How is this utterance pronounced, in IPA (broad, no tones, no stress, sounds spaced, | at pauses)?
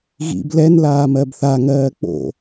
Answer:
ɣ ḭ b l ɛ n l aː m ɜ b θ a ŋ ɜː k͡p o̰